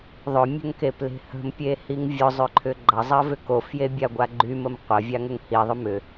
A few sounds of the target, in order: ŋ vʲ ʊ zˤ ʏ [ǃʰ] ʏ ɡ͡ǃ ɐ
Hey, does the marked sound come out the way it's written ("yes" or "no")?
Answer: yes